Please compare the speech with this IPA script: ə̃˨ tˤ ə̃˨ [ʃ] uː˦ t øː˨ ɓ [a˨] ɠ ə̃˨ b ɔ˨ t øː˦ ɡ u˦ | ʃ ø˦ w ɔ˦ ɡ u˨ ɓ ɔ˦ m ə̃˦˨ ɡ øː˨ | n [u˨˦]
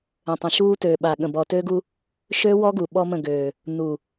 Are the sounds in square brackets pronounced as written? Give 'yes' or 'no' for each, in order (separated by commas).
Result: yes, yes, no